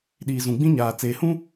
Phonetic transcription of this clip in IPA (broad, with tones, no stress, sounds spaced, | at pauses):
ɗ iː˨ z ũ˨ ɡ͡b ĩ˦ ɲ aː˨ t͡s eː˨ h ũ˦